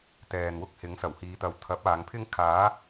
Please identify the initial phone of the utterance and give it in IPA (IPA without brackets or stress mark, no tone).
t̪